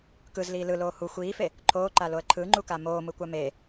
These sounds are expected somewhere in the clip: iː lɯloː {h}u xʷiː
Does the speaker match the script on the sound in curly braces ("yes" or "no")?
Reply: yes